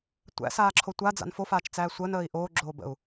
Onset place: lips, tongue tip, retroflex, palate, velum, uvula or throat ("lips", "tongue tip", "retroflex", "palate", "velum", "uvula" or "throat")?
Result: tongue tip